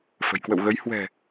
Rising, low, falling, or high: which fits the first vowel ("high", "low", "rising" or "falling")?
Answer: low